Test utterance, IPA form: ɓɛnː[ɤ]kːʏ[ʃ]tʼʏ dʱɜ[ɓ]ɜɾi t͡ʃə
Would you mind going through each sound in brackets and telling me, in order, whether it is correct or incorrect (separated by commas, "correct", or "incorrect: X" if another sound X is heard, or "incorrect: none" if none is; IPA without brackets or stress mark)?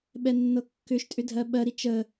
correct, correct, correct